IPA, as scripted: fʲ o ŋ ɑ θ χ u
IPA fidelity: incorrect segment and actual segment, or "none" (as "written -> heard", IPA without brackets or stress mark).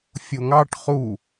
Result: θ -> ʈ